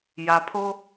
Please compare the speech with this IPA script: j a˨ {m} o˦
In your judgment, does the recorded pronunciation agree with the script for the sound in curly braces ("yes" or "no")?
no